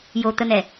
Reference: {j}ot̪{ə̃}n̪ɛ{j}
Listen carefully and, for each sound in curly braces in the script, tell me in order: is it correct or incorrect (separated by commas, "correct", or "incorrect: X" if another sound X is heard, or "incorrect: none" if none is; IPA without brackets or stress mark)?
correct, incorrect: ə, incorrect: none